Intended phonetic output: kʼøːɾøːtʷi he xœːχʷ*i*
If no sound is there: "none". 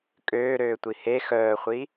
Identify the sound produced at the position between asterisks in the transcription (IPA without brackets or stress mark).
i